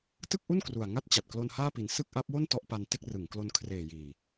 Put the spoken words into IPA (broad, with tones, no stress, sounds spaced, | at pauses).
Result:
t ɯ˥˩ k̚ ʔ u˥˩ n k r u˨˩ a̯ ŋ a˥˩ t̚ t͡ɕ a˨˩ t̚ k l o˧ n h aː˥˩ p i˨˩ n s ɯ˥˩ k̚ ʔ a˦˥ p̚ w o˥˩ n t ɔ˥˩ ʔ p a˧ n t e˥˩ k̚ r ɯ˩˦ ŋ k l o˧ n kʰ r eː˨˩ j iː˨˩